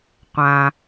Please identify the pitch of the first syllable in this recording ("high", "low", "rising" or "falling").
low